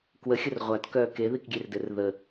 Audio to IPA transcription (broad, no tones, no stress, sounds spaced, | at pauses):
k w ə xʲ ə r ʁʷ a t k œː k e ð i k ɡʲ e r d ɘ r ð ə